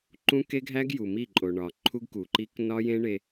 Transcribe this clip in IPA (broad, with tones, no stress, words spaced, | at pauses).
ǃũ˦ke˦ɡʱæ˦ɡ ju˨mi˦˨ǃʼo˨ ɳɒ˨ ǃʰu˦ɡku˨ǃi˦k nɒ˦jẽ˦ ɳe˦